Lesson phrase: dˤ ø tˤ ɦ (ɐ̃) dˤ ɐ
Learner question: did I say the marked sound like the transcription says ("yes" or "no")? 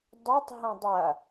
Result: yes